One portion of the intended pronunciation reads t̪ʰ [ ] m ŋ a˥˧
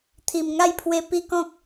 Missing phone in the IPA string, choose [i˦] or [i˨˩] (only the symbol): i˨˩